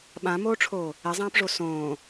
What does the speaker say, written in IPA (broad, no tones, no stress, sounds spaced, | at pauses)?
ɓ ã m oː ʈ͡ʂʰ oː | ɛ zˤ ãː p ʐ o s õː